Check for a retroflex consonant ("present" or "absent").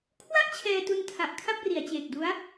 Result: absent